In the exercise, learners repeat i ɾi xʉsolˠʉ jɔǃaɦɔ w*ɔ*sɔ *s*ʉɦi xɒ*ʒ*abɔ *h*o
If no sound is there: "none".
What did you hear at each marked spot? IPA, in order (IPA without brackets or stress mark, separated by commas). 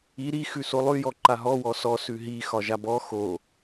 ɔ, s, ʒ, x